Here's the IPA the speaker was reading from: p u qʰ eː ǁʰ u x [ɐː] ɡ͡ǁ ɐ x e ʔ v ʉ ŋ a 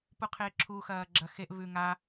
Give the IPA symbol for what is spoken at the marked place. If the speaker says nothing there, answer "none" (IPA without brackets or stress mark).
ɐː